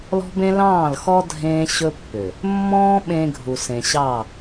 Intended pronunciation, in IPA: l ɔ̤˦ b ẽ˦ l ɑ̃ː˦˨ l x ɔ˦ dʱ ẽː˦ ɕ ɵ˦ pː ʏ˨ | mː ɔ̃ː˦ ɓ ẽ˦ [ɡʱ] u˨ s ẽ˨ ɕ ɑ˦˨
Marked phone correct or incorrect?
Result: correct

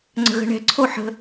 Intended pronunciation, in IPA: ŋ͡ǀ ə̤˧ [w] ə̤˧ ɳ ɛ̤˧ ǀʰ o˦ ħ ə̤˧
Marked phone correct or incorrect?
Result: incorrect: ɣ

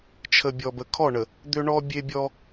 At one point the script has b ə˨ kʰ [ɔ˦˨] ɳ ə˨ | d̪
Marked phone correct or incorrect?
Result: correct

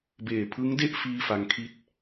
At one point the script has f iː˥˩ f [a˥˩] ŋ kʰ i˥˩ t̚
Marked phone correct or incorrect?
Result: incorrect: a˦˥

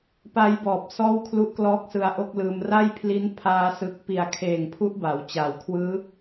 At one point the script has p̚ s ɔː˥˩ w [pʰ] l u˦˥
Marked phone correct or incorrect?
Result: incorrect: kʰ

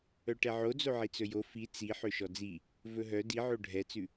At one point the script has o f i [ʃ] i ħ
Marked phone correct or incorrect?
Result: incorrect: t͡s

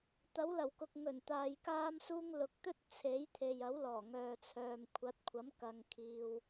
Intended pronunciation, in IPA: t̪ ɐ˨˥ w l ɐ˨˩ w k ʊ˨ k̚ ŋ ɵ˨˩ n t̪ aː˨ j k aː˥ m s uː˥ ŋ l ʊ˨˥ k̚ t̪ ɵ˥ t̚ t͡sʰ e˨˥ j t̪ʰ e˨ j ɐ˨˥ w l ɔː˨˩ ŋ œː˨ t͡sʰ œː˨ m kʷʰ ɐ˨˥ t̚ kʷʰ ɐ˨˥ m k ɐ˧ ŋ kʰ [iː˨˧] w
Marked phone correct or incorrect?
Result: incorrect: iː˧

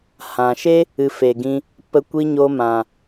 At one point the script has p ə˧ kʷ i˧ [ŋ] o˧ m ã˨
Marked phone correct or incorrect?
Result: incorrect: ɲ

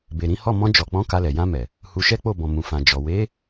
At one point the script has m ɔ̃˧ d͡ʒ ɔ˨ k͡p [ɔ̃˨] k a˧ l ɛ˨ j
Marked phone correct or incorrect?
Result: incorrect: ɔ̃˨˦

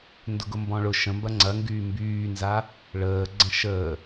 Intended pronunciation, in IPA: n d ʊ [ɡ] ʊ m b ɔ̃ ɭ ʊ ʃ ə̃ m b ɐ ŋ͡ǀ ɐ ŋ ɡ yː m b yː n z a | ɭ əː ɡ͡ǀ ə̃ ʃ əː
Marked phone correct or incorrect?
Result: correct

